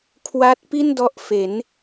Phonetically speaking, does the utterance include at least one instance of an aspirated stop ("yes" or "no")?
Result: yes